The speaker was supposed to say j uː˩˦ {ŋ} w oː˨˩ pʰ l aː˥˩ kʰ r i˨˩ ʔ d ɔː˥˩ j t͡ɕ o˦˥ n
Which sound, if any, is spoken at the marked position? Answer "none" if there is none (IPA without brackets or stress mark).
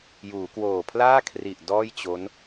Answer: k